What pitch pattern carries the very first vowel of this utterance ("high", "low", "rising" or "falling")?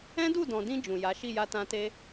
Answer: high